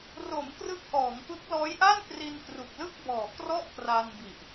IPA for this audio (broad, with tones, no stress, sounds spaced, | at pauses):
r o˩˦ m k r ɯ˦˥ k̚ ʔ ɔː˩˦ ŋ p ɯ˦˥ k̚ l ɔː˦˥ j ʔ a˥˩ n k r i˧ n k r u˨˩ k̚ l ɯ˥˩ k̚ b ɔː˨˩ k r ɔ˥˩ ʔ k r a˧ n b i˨˩ ʔ